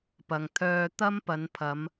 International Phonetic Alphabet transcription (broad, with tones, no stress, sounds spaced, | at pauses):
p ɐ˨ ŋ t̪ʰ œː˧ t̪ ɐ˥ m p ɐ˨˧ n pʰ ɐ˨˧ m